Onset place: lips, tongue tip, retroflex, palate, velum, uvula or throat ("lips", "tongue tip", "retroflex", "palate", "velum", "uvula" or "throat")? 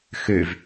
velum